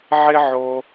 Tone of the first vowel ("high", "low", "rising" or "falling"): high